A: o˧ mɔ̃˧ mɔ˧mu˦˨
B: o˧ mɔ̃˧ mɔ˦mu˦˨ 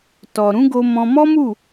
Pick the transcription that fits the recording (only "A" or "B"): B